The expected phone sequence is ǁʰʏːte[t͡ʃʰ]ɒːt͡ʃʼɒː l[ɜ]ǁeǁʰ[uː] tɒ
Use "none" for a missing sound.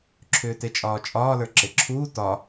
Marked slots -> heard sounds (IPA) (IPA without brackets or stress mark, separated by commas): t͡ʃʼ, ə˞, uː